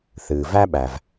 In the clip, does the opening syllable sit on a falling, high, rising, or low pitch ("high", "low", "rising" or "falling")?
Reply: low